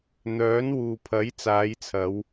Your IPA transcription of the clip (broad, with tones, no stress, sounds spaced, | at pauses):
n̪ œː˨˥ n w uː˨ pʰ ɐ˨˥ j t͡s aː˨˧ j t͡sʰ ɐ˨˧ w